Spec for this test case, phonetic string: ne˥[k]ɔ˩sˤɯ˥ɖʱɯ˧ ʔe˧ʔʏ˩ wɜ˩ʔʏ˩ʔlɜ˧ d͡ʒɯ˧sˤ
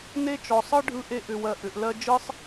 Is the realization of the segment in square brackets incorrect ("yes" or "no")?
yes